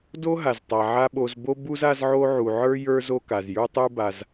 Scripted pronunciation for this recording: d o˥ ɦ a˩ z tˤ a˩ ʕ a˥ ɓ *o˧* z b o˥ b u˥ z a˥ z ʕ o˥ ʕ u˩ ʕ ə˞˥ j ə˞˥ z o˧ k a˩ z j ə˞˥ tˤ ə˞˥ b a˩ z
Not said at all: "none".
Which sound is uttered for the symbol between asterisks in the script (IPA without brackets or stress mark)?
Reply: o˧